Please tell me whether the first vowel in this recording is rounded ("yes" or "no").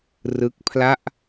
no